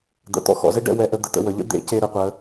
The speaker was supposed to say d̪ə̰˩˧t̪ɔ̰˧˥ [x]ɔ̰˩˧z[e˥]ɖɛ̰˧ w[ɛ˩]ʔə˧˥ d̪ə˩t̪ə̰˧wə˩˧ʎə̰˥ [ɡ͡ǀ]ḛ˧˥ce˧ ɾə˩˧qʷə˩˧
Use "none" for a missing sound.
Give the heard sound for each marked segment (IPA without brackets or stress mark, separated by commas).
x, e˥, ɛ˧˥, d̪